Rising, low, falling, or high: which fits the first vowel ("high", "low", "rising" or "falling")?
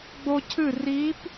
high